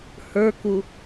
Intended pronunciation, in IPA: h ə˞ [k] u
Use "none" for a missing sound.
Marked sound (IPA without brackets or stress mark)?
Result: k